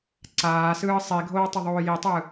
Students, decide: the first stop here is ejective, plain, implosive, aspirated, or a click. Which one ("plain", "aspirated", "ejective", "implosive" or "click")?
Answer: click